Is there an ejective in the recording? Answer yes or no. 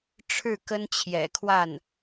no